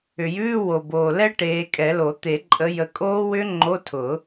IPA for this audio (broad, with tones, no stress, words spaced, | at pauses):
ʏ˨˩jʉː˧˥˧wo˨˩boː˨˩ lɛ˦˥ ʈeː˨˦kʼɛ˨˩˦lo˨˩˦ t̪e˨˩˦ǃʼə˨˦ jə˨˦kʼoː˦˥ wʏ˦˥ ŋ͡ǃo˧˥˧tʰʊ˨˩˦